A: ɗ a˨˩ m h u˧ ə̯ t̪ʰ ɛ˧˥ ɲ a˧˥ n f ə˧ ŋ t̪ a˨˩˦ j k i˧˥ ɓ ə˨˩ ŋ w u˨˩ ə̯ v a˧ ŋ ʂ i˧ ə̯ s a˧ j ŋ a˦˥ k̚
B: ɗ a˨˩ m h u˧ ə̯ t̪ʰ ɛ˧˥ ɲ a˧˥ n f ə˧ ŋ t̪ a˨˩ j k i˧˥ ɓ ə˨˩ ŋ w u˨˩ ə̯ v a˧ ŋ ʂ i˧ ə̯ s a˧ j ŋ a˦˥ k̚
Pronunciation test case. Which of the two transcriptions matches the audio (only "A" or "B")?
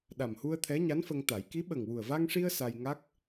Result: A